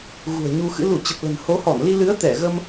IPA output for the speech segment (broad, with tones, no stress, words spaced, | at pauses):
ɣṳ˨˩ə̯ɲu˧xɨ̰˧˥ lu˧˩t͡ɕə˨˩p̚ lə̤˨˩nho˨˦hɔ˧˩n li˧lɨ˨˦ə̯ t̪ɛ˧˩ɣə˧m